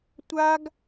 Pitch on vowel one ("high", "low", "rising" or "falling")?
high